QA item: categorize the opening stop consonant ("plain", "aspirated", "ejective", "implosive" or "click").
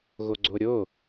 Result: click